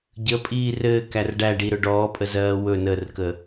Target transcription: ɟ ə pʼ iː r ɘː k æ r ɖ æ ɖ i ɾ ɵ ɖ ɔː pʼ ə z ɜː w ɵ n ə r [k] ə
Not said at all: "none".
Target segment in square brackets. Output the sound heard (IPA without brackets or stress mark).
k